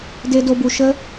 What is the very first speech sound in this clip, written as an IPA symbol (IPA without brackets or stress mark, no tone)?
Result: d